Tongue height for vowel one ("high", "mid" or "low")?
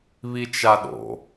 high